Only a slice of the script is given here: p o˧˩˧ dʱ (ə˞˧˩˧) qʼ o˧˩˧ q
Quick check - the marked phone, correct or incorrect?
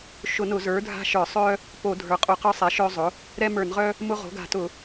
incorrect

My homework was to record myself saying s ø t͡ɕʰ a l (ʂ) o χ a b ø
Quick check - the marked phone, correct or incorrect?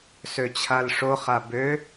correct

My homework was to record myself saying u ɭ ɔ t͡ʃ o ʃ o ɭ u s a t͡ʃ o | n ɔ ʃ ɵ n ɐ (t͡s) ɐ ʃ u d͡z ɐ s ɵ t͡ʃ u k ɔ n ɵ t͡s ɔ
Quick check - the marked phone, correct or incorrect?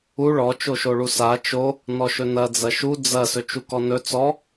incorrect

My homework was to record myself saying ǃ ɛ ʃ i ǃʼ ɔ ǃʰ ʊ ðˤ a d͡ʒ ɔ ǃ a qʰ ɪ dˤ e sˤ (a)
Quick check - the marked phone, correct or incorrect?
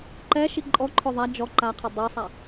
correct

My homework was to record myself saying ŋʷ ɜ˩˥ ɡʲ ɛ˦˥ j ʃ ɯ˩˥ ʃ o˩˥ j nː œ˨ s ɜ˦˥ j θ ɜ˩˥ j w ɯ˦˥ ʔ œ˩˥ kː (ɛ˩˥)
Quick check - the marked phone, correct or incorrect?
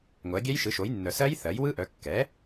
correct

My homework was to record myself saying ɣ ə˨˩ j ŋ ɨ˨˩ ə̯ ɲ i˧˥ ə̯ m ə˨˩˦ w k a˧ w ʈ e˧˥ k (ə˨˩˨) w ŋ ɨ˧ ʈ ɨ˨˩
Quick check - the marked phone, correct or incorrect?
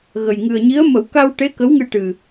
incorrect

